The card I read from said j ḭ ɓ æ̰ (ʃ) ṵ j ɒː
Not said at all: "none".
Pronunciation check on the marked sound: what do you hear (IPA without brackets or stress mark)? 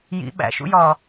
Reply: ʃ